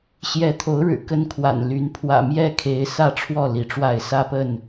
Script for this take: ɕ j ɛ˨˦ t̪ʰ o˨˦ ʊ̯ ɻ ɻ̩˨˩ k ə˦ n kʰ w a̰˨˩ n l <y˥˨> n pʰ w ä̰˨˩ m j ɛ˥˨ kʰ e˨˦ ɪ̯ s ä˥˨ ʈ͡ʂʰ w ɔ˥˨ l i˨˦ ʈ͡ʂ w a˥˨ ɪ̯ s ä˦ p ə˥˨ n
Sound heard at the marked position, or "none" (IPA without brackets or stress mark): y˨˦